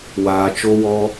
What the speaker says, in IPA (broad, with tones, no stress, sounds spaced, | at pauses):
w aː˧ t͡ʃ o˦ w ɔ˦